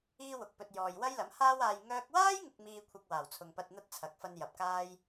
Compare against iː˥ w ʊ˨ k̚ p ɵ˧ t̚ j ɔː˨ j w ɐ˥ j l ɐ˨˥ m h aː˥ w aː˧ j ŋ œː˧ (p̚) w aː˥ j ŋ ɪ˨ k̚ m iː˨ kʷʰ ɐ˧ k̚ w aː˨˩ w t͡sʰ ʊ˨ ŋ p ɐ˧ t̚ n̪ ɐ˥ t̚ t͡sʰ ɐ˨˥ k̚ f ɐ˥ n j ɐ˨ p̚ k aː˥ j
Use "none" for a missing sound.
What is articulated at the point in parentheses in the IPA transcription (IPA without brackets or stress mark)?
k̚